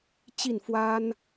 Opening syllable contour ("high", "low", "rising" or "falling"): falling